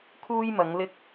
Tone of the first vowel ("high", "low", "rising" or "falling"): high